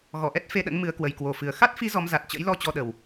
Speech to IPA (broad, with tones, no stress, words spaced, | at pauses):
ɣɔ˧˩ʔɛ˦˥t̚ fe˧ɗə̰˧˥n mɨ˨˦ə̯kwə˨˩jkwo˨˩fɨ˨˩ə̯ xa˦˥t̚fi˨˦ zɔ˨˦m za˨˩t̚t͡ɕə̰˧˥jlɔ˧ t͡ɕɔ˧ɗə˨˩w